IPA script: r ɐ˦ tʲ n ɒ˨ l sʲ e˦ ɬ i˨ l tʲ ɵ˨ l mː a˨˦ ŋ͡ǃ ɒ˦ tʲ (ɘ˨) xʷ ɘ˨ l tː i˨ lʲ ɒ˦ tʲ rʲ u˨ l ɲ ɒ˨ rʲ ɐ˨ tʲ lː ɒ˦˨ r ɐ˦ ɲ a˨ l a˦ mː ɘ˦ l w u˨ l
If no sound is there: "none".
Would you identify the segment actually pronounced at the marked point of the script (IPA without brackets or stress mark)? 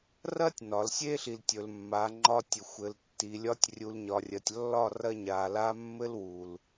ɘ˨